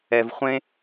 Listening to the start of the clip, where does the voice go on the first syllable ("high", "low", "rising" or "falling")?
low